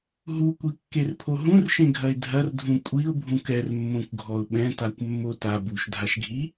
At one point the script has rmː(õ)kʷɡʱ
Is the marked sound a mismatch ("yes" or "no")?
no